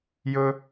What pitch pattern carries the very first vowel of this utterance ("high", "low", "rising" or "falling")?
low